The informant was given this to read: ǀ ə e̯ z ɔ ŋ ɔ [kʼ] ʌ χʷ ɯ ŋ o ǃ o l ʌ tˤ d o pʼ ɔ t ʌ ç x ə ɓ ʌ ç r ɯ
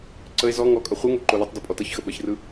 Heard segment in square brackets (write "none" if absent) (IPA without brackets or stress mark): kʼ